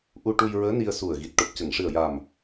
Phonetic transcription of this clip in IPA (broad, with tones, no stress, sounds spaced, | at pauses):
ʔ u˧ ʈ u˧ j ɹ əː˧˥ n i˧ ə̯ s u˨˩ ə̯ ɣ i˨˩ t̚ ʈ o˨˩ p̚ c ə˨˩˨ ŋ ʂ ɨ˨˩ ə̯ j a˨˩ m